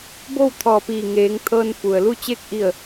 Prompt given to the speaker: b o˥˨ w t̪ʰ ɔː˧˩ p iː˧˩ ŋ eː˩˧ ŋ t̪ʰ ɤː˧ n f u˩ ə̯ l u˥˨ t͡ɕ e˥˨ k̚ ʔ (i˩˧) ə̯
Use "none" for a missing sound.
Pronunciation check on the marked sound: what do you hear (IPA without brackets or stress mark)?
i˥˨